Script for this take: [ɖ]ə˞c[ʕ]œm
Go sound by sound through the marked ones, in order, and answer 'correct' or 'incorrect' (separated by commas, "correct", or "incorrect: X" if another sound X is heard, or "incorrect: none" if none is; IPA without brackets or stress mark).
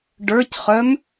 correct, incorrect: χ